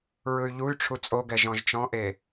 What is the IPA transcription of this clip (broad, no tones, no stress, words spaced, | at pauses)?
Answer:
ɹɯy̯ʎuy̯ʈ͡ʂʰu t͡sʼoɡɛ ʒɔ̃ʒt͡ʃɔ̃ʔe